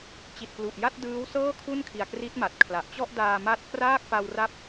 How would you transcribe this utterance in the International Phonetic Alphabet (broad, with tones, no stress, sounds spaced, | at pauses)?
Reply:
t͡ɕ i˨˩ t̚ p l u˨˩ ʔ j a˥˩ t̚ d ɯː˦˥ w s ɤː˥˩ kʰ u˥˩ n kʰ i˨˩ a̯ k r i˦˥ t̚ m a˨˩ t̚ kʰ l a˨˩ ʔ t͡ɕ ɔ˥˩ ʔ d aː˧ m a˥˩ t̚ k r aː˥˩ k̚ p a˧ w r a˦˥ p̚